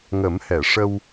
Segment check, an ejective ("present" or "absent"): absent